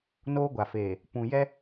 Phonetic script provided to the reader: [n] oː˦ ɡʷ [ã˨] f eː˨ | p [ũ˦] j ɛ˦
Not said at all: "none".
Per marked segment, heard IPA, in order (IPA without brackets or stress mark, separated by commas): n, a˨, ũ˨